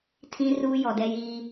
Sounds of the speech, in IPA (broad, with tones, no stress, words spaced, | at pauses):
tʰĩ˦ruː˦ jɔ˨dɛ˦jiː˦